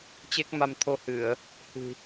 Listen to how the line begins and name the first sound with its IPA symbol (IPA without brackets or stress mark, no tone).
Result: t͡ɕ